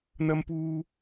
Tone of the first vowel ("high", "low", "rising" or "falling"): high